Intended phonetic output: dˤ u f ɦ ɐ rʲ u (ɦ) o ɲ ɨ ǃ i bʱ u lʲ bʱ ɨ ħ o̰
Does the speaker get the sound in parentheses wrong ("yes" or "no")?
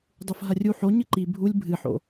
yes